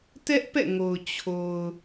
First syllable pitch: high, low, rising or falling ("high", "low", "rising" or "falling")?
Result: high